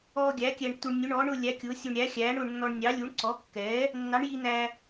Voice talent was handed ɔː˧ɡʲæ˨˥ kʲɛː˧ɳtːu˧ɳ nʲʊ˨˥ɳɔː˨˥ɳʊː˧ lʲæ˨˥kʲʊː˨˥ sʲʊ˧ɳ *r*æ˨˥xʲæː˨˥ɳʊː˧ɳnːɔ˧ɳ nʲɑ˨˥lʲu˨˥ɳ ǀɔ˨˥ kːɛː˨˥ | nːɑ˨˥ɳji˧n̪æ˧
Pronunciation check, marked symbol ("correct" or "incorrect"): incorrect